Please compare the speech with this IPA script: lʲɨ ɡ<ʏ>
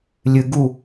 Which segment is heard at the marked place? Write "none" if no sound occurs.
u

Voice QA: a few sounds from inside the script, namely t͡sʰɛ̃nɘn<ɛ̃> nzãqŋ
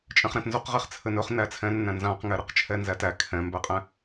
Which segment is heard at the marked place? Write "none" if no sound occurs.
æ̃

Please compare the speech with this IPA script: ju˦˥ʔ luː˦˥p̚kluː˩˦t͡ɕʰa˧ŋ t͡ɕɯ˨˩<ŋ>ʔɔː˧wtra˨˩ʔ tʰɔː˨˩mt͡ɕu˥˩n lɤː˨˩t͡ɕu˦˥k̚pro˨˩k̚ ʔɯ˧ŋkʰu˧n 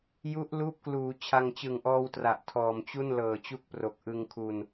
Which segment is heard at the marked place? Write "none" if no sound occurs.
ŋ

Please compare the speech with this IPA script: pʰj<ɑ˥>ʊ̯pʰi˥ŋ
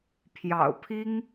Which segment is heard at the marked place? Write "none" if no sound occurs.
ɑ̰˨˩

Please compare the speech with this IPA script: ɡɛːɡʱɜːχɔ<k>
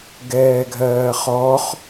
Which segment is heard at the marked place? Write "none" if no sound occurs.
χ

